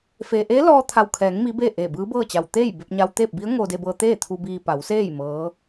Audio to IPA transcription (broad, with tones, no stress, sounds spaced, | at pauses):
f e˧ ʔ eː˧˥ l ɔː˧ t̪ʰ a˧˩ w kʰ ɛː˩˧ ŋ m i˧˥ b e˥˨ ʔ e˧˩ b ɯː˧˥ b ɤː˥˨ t͡ɕ a˧˩ w t̪ eː˥˨ j b e˧ p̚ ɲ a˧ w t̪ eː˥˨ p̚ b i˧˥ ə̯ ŋ oː˧ d e˧ b ɤː˧ t̪ eː˥˨ t̪ʰ u˧ b iː˧ p a˩˧ w s eː˥˨ j m ɤː˧˥